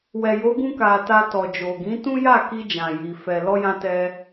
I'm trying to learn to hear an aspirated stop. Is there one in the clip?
no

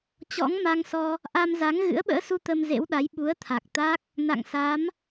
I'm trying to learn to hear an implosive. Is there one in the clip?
yes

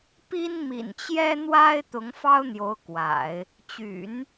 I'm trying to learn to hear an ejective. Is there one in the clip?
no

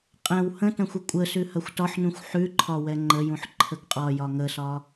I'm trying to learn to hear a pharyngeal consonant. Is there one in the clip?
yes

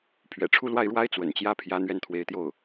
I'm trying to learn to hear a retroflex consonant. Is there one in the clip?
yes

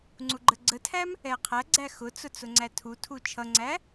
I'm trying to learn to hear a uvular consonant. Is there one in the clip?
yes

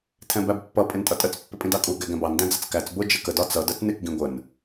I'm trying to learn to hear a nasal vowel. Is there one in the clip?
yes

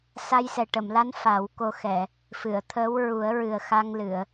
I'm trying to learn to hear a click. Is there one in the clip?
no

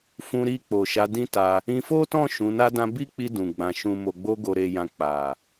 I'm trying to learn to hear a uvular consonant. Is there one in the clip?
no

